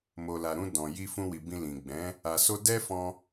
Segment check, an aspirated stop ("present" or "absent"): absent